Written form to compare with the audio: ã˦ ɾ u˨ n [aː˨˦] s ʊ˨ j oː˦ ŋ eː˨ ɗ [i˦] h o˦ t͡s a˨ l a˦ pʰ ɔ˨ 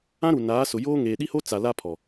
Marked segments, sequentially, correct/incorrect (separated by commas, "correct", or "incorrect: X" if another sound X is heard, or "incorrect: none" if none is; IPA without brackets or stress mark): correct, correct